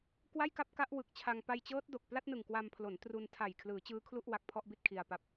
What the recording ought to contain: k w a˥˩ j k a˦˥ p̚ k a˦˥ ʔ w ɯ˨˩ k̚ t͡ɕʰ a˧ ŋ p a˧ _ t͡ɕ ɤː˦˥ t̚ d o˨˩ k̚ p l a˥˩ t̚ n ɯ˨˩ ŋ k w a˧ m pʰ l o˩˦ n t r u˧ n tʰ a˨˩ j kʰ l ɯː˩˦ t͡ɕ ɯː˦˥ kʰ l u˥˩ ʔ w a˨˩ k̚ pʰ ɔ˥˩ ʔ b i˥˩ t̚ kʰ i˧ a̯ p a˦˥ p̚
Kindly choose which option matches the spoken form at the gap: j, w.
j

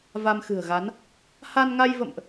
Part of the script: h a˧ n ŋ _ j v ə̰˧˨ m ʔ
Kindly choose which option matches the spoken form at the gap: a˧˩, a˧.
a˧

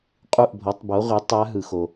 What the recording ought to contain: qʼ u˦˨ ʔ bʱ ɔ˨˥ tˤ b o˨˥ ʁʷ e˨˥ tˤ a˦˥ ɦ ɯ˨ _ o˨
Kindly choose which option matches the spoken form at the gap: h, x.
x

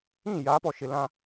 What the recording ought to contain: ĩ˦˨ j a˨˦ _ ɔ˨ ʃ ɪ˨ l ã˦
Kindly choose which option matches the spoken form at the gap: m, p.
p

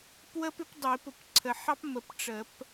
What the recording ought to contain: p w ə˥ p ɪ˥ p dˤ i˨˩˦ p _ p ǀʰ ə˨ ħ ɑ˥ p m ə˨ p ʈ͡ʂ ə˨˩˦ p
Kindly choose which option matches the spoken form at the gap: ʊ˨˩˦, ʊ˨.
ʊ˨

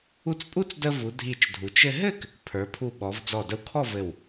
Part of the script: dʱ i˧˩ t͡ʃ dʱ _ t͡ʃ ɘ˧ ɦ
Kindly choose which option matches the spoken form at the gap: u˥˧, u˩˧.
u˩˧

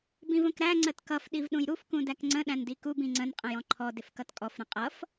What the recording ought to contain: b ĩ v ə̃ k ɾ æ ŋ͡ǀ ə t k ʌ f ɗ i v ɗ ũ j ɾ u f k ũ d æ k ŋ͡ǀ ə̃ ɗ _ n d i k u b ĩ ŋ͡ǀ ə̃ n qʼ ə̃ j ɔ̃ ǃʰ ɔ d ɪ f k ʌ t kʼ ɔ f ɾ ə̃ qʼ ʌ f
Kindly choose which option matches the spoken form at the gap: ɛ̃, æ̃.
æ̃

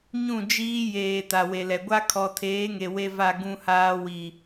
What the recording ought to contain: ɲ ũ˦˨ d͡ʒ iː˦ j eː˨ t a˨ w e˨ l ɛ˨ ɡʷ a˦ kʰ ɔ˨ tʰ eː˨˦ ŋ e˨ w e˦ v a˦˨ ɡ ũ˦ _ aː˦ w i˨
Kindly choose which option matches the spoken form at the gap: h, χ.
h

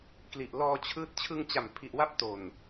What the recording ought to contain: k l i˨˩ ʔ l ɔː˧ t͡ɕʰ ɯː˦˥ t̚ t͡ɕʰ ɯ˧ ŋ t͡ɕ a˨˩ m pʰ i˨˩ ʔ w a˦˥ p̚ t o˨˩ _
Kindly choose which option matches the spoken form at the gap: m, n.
n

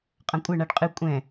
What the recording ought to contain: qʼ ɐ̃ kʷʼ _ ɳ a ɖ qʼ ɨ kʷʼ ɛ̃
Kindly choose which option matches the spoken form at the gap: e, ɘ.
ɘ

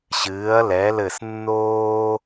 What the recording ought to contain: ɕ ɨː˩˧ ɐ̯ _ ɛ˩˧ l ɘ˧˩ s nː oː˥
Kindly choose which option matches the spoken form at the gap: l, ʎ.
l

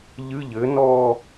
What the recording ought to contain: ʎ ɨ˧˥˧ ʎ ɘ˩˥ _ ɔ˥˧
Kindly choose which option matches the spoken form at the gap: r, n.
n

